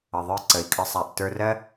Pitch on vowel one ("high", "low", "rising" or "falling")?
low